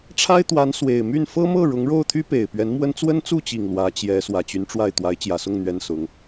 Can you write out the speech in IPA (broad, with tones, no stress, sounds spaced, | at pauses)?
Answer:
ʈ͡ʂʰ a˥ ɪ̯ t̪ w a˧˥ n s w e˨˩ ɪ̯ m y˥˩ n f ɤ˥ m ɤ˥˩ ɻ ʊ˧˥ ŋ ɻ o˥˩ ʊ̯ t̪ʰ y˥ p e˨˩ ɪ̯ p ɥ ɛ˧˥ n m w ə˥ n t͡s w ə˥ n t͡s u˥˩ t͡ɕ i˨˩ ŋ l w ä˧˥ t͡ɕ j ɛ˧˥ s w ä˨˩ t͡ɕ y˧˥ n ʈ͡ʂ w a˥˩ ɪ̯ t̪ w a˧˥ ɪ̯ t͡ɕ j ä˨˩ s ʊ˥˩ ŋ n̪ ɥ ɛ˥ n s ʊ˧˥ ŋ